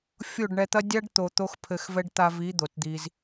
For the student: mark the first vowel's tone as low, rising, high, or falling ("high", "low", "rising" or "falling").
falling